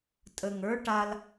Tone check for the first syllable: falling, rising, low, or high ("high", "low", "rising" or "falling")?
low